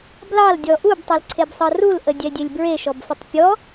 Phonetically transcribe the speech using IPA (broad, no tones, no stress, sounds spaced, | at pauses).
b l ɑ l dʲ ɔ ʔ u b tˤ ɤ l ǀʰ e b sˤ ɤ r u l ʔ ə dʲ ɛ dʲ e lʲ b ɹ e ʃ ɔ b f ə tˤ pʲ ɔ